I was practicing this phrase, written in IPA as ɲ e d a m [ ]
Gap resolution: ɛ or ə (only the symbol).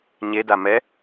ɛ